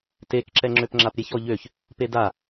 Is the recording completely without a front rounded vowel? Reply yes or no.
no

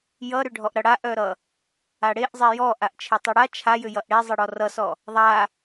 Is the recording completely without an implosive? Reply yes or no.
yes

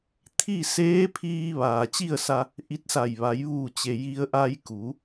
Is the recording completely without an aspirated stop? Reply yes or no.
no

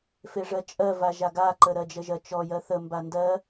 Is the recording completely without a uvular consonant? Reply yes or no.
yes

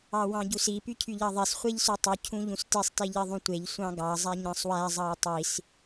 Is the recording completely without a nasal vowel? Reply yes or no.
no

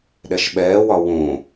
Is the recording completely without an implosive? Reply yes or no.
no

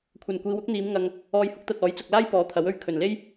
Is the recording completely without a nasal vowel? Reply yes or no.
yes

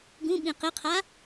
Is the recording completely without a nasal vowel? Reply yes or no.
no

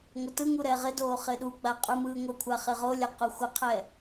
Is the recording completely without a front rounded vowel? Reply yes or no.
yes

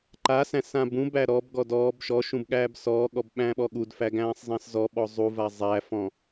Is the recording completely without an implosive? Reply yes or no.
no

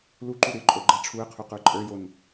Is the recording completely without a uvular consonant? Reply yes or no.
no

